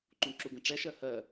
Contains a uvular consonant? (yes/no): no